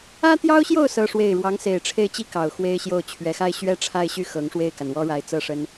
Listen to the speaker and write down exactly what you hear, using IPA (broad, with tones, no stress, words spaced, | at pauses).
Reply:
ä˥t̪jɑ˥ʊ̯ɕjo˥˩ʊ̯ sɤ˥ʂwe˥˩ɪ̯ ɻwɑ˧˥ŋse˨˩ɪ̯ʈ͡ʂʰe˥˩ɪ̯t͡ɕi˥ kɑ˨˩ʊ̯xwe˥ɪ̯ɕjo˥˩ʊ̯ t͡ɕʰɥɛ˨˩xa˥˩ɪ̯ ɕɥɛ˥ʈ͡ʂʰa˥˧ɪ̯ɕy˥˩ xɤ˧˥ŋ ʂwe˥˩ɪ̯ka˩nwɔ˥ ɻa˧˥ɪ̯t͡sɤ˥˩ʂə˥n